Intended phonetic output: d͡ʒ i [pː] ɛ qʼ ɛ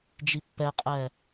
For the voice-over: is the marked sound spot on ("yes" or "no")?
yes